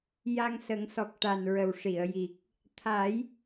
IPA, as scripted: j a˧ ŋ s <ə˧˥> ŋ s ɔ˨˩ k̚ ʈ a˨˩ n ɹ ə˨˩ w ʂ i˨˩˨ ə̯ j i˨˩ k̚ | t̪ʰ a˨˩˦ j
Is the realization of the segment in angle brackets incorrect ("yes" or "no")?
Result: yes